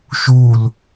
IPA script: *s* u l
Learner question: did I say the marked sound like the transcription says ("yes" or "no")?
no